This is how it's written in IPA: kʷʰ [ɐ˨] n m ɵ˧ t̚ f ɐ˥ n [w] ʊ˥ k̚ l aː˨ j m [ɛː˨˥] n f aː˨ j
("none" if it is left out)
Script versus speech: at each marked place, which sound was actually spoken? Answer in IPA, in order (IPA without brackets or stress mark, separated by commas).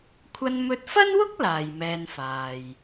ɐ˧, w, ɛː˧